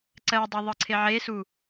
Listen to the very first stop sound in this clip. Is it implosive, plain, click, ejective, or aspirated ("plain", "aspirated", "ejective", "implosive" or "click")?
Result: click